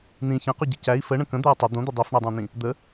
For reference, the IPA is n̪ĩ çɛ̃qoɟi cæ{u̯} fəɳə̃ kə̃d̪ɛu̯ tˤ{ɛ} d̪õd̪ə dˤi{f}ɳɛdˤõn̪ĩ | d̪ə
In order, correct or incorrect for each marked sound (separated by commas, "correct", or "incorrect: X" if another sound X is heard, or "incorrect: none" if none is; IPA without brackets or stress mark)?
incorrect: i̯, incorrect: ə, correct